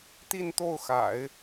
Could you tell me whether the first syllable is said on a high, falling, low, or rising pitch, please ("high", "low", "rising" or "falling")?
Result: falling